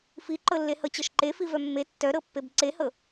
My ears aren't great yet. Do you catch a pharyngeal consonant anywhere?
no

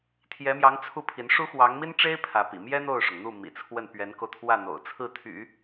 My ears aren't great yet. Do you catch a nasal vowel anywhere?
no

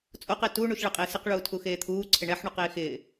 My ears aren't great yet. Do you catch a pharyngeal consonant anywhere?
yes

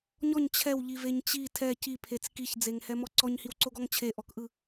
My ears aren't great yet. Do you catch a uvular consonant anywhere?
no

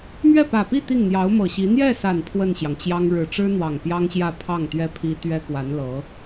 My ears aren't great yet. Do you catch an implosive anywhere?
no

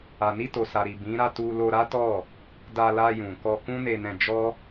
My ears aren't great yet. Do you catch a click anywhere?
no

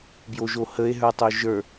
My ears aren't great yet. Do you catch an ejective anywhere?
no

